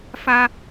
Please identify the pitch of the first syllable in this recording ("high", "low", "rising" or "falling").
high